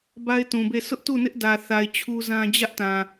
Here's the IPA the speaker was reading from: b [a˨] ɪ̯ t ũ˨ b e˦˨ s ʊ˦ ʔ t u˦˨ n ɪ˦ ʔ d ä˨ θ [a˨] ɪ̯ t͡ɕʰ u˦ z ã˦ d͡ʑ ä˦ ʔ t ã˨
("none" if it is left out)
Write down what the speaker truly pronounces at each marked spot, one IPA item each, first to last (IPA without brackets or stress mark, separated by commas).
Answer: a˦, a˨